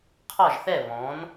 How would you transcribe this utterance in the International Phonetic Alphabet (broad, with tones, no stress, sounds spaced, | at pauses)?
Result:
qʰ ɒ˥˨ ʒ θ ɛ˥˨ β ɔ̃˩˥ n